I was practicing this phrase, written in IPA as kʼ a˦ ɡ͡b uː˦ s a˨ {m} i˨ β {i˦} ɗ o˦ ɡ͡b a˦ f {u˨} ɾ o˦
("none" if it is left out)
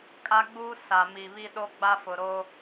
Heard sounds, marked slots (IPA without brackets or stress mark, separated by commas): m, i˦, ʊ˨